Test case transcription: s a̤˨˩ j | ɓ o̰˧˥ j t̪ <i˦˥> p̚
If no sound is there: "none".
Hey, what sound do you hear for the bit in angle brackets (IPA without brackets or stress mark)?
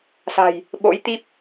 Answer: i˦˥